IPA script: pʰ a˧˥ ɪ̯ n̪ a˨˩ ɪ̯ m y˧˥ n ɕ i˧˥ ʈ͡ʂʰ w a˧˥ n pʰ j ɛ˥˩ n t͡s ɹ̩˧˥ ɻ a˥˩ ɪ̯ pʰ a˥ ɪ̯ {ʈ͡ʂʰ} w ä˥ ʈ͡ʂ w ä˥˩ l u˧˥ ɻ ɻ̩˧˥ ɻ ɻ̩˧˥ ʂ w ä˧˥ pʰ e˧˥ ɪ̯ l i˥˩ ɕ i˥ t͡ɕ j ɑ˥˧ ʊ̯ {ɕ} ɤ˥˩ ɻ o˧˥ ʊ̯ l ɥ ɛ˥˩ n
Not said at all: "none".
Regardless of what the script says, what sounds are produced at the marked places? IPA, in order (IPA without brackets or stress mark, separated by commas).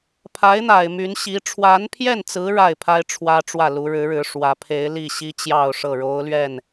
ʈ͡ʂʰ, ʂ